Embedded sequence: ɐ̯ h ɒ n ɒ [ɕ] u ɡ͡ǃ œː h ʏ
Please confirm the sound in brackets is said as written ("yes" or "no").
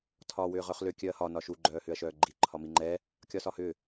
no